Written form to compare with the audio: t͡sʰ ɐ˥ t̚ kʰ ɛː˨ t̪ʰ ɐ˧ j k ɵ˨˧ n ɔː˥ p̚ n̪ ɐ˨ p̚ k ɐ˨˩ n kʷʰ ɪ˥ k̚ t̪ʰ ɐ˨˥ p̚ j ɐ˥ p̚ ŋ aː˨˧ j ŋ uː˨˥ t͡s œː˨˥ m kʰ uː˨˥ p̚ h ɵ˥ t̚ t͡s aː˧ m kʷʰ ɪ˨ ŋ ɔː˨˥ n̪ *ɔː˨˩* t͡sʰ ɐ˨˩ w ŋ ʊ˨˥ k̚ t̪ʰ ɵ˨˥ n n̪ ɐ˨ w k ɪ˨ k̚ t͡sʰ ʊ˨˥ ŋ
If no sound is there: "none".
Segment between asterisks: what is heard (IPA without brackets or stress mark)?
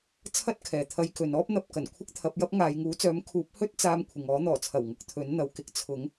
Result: ɔː˨˩